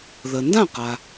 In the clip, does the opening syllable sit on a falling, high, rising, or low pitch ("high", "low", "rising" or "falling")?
low